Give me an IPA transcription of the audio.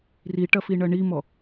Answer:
r i ʈ ɐ f i ɳ ɐ ɳ i m ɔ

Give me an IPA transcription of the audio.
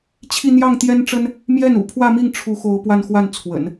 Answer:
t͡ɕʰ i˥˧ n̪ j ɑ˥˩ ŋ t̪ j ɛ˥ n ʈ͡ʂ ə˥ n | m j ɛ˥˩ n ṵ˨˩ pʰ w ä˥˧ m i˥˩ ŋ ʈ͡ʂʰ u˧˥ x o˧˥ ʊ̯ p w a˥˧ n x w a˥˩ n t͡sʰ w ə̰˨˩˦ n

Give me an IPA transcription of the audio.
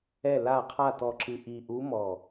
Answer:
ɛ˧˩ l a˧˩ qʰ a˧˩ t ɔ˧˩ ǁ ɨ˧˩ ʔ i˧˩ ʔ u˧˥ m ɔ˧˩

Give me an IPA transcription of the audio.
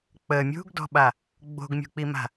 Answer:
k͡p ə mʲ ṳ ɡ d ɔ̤ ɓ a | ɡ͡b o̤ ɡ mʲ ṳ k͡p i m a̤

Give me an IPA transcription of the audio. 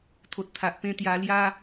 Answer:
t̪ʰ o˨ t̚ t̪ʰ a˨ ʔ p ẽ˧ t̪ j a˧ l j a˧

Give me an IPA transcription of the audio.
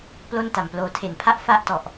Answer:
p l o˥˩ n t a˨˩ m p l oː˧ tʰ e˨˩ n pʰ a˥˩ ʔ f a˥˩ ʔ t ɔ˨˩ ʔ

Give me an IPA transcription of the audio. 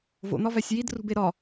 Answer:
v o̰ n̪ ɒ v æ sʲ j i d r ṳ b e ɾ ɒ

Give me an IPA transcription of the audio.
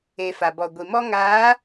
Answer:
e˨ f a˨ b ɔ˨ ɡʷ i˨ m ɔ˦ ŋ aː˨˦

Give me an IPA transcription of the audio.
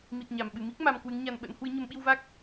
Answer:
m i˨˩ t̚ ɲ a˧˩ m ɓ ɨ˧˩ m i˦˥ k̚ m a˧ m k w ɨ˨˦ ŋ ɲ a˧ n ɓ ə̰˧˥ n h w ɨ˨˦ ɲ ə˨˦ m ɓ i˧ w v a˦˥ k̚

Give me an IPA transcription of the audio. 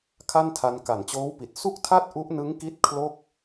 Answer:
kʰ a˥˩ n tʰ a˧ n k a˨˩ n t͡ɕ oː˦˥ w p i˨˩ t̚ s u˥˩ k̚ tʰ a˥˩ t̚ ʔ u˦˥ ʔ n ɯ˦˥ ŋ k i˥˩ t̚ kʰ l o˥˩ k̚

